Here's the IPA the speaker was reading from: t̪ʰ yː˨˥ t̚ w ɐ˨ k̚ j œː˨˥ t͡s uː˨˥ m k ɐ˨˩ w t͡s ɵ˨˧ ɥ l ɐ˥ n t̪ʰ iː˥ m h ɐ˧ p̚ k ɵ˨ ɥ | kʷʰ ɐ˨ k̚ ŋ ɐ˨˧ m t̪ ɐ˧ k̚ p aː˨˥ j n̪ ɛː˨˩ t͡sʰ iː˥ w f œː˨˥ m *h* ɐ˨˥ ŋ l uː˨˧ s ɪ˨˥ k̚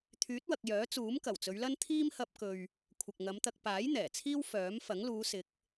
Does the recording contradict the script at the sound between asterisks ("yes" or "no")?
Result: yes